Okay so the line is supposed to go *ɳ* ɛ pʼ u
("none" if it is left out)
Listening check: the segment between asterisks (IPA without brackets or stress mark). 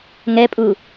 ŋ